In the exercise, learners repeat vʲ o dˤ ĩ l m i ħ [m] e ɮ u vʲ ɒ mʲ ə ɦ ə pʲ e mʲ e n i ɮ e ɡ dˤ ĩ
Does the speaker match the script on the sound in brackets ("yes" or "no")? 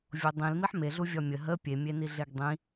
yes